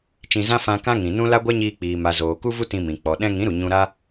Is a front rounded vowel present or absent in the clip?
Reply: absent